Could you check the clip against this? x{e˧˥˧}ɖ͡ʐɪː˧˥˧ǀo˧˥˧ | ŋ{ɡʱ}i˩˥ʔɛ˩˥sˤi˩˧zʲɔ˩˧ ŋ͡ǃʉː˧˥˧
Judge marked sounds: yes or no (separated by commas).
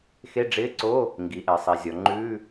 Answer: yes, no